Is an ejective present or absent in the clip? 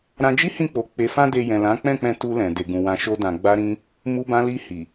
absent